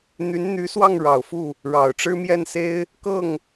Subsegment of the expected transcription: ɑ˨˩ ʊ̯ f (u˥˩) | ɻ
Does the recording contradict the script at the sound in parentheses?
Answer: no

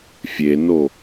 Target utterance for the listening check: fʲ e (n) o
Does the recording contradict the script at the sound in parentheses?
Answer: no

